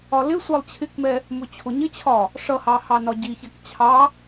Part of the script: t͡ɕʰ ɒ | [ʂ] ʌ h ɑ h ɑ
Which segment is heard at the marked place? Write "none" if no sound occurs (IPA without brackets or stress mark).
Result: ʂ